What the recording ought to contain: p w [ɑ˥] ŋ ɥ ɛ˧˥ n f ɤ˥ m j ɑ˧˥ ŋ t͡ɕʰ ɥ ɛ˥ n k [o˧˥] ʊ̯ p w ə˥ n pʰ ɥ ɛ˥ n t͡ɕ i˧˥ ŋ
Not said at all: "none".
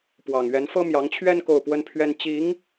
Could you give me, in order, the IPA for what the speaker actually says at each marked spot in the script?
ɑ˨˩, o˥˩

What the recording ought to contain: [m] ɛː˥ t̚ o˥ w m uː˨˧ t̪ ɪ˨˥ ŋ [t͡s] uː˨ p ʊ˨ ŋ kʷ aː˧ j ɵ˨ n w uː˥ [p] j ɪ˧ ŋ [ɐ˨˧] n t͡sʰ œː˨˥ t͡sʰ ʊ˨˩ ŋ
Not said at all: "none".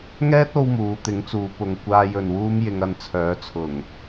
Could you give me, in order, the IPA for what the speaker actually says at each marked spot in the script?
ŋ, t͡s, m, ɐ˧

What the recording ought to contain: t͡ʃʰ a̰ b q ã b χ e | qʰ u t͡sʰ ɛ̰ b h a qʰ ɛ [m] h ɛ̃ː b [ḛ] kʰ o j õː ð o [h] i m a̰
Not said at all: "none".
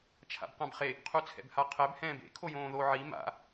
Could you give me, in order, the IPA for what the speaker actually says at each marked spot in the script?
b, ḛ, ʕ

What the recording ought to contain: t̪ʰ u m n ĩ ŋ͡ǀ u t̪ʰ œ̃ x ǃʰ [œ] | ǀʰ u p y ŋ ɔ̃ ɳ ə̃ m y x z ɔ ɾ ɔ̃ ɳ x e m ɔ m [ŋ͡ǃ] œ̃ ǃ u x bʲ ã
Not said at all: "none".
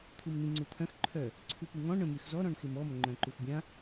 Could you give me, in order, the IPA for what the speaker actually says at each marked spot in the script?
œ, ŋ͡ǃ

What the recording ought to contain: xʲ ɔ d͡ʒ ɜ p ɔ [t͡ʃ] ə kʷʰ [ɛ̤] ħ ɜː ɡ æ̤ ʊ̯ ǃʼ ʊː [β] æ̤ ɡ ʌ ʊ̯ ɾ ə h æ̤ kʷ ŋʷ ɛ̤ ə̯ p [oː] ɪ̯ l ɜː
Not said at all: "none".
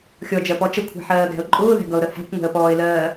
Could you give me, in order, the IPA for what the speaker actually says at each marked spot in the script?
t͡ʃ, æ̤, ð, ɔː

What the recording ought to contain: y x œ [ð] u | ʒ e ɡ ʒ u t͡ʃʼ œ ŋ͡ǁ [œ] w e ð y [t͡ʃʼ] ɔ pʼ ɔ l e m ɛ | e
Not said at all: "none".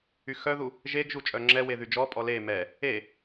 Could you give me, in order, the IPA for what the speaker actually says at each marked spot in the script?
ð, ɛ, d͡ʒ

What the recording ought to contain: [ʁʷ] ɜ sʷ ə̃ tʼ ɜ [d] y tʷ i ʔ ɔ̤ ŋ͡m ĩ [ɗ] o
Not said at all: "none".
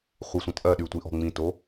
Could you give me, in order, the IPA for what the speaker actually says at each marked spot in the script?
χʷ, ɗ, t

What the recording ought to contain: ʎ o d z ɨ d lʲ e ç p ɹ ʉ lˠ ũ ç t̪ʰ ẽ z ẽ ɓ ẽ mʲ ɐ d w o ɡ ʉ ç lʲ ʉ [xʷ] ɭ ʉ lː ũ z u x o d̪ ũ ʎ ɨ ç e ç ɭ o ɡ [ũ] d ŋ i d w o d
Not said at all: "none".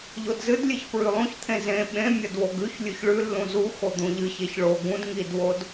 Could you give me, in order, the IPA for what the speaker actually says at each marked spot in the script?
ç, ũ

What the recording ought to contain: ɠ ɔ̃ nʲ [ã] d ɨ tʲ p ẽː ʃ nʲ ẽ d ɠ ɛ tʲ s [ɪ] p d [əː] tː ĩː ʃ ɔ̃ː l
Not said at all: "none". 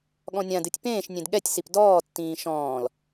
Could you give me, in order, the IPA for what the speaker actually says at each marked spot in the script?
ã, i, ɔː

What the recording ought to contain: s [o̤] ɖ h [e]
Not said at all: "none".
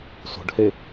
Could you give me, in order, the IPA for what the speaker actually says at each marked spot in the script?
o̤, e

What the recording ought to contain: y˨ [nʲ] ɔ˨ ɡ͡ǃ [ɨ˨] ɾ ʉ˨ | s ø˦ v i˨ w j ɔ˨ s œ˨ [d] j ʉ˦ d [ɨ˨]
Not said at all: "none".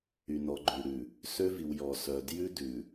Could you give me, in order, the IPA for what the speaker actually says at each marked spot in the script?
n, ʉ˨, d, ʉ˨

